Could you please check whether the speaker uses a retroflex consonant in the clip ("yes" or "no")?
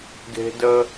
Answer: no